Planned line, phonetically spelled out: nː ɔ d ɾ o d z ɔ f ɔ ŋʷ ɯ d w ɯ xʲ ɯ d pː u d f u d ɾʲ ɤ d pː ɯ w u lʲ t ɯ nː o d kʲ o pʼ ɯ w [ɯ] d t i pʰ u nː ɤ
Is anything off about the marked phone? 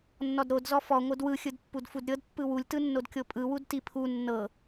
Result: yes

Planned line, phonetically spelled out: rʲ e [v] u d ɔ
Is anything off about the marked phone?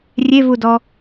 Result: no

